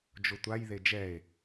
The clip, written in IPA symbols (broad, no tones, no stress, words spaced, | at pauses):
d͡ʒotʷaj ðed͡ʒɛe̯